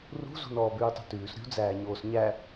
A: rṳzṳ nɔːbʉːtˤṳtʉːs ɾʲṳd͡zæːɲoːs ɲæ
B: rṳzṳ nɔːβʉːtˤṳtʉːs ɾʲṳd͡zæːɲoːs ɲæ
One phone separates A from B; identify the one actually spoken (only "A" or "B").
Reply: A